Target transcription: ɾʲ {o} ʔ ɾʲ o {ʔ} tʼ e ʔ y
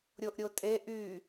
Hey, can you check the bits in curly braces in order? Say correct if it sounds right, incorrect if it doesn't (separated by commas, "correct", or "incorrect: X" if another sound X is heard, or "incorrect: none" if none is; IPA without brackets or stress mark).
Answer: correct, incorrect: none